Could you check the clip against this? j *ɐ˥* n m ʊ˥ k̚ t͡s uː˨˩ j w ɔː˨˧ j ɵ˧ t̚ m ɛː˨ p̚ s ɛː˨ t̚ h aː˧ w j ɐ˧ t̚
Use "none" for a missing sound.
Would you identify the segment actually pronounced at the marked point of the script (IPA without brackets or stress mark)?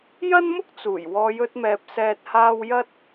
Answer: ɐ˥